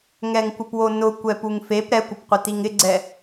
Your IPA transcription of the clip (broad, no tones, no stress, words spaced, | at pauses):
ŋɛŋkʷɪpwonʊ kʷɛpuŋfep ɾɛkʷɪpqʷɪ tiŋɪɡ͡ǀɛ